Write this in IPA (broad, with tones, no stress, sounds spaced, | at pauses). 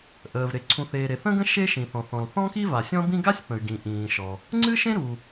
ʔ əː˩ v ɾ e˩ ǀʰ ũ˩ θ eː˩ ɾ e˩ θ ə̃˥ ɡ ə̃˥ ʃ e˥ ʃ ĩ˩ θ ɔ̃˩ θ ɔ̃˩ l θ ɔ̃˥ k i˥ v a˩ sʲ ɔ̃˥ b ĩ˥ ɡ a˥ sʲ p ə̃˩ y̯ ɡ ĩ˩ ʔ ĩː˩ ʃ ɔ˩ | ŋ͡ǀ ɨ˥ ʃ ẽ˥ ɾ u˩